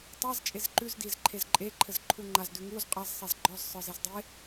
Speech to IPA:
tˤaz t͡ʃʼezǃʉzdiz ǃʰezǃʼeǃʰɘz ǃʰuŋ͡ǃaz dʉŋuz qʼaz sˤezɡ͡ǃɔz sˤə˞zezdˤe

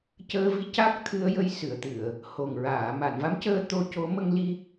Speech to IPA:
cəː˧vi˧˥ ca˦˥k̚t̪ʰɨ˧ə̯jə˧j sɨ˨˩˨ə̯t̪ɨ˨˩˨ə̯ | ho˨˩ŋɹaː˨˩˨ ma˨˩˨nva˧˥mcəː˧ t̪o˧co˧˥ mə˧ŋli˧

